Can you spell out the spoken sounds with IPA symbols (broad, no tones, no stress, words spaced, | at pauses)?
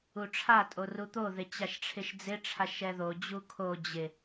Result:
uʈ͡ʂʰatʼo rut̪oðɪ t͡ɕaʃʈ͡ʂʰɪʃd͡zɪʈ͡ʂʰaʃ ɛðod͡ʑu kʰo d͡ʑɪ